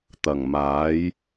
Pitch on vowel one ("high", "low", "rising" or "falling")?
low